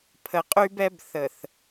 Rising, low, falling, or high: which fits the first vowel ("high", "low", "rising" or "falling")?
low